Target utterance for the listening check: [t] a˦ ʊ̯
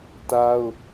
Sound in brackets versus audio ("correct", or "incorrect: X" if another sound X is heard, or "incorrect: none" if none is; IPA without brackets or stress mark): correct